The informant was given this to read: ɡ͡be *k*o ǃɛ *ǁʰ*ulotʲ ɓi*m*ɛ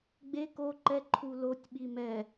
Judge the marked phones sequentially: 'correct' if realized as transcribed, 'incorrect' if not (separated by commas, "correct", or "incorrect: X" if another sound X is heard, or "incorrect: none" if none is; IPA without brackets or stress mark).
correct, incorrect: ǃʰ, correct